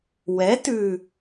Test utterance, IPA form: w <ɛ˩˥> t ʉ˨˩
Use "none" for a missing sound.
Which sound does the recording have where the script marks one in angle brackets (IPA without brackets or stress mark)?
ɛ˩˥